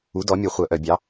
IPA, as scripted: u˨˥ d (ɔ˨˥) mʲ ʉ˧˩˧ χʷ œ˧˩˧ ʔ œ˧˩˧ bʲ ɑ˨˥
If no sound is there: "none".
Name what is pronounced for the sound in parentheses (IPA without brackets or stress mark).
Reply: ɔ˨˥